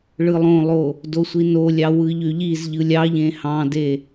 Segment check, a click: absent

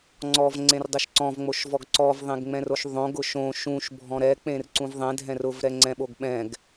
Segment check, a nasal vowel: present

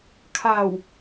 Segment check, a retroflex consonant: absent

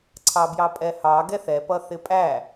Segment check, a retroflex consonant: absent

